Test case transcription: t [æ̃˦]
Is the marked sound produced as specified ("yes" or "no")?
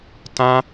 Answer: no